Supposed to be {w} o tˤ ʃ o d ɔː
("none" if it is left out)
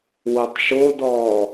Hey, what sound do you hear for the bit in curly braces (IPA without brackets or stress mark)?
w